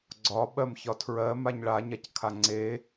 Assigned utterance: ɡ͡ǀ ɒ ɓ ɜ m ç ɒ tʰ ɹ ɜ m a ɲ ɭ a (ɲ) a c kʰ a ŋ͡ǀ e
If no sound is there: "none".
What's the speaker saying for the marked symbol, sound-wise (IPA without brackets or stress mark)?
ɲ